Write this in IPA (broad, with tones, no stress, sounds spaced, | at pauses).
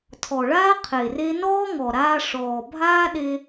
tʰ ɔ˨ ɭ aː˦ qʰ e˨ r e˦ n ɔː˦ ŋ ɔ˨ ɾ aː˧ ʂ ɔː˨ bʱ aː˦ ɗ e˧